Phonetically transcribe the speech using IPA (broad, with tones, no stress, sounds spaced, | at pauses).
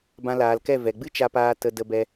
b ã˧ l aː˨ l k ɛ˦˨ v ɛ˨ ɡ͡b ɨ˦ t͡ʃ a˧ p aː˧ t ə˧ d ə˧ b ɛ˧